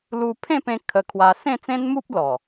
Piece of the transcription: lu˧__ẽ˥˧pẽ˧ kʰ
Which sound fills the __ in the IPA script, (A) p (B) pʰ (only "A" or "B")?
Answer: B